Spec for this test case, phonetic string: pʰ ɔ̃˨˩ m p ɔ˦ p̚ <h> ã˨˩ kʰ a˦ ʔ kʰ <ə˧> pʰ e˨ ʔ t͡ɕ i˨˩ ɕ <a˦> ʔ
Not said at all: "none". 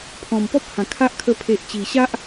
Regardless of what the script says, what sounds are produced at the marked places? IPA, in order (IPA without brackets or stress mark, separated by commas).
h, ə˧, a˦